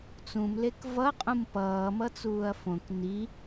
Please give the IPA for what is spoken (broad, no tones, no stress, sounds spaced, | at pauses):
t͡s ũ m l e k v ʌ qʼ ũ m p ʌː m ʌ t͡s uː ɐ̯ f õ k n i